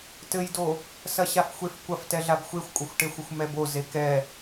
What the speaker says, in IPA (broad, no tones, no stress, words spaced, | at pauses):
tɘjdo | sɐɕafxʷef kʷɐftɛɮab xʷexʷkʷʼɐxʷʈexʷɘxʷ mɛbo zekɛ